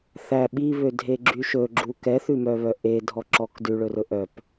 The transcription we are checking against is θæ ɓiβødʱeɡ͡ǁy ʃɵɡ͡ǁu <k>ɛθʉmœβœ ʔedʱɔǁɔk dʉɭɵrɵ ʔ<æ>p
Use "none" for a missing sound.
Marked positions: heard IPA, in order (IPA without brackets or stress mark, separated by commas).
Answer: k, œ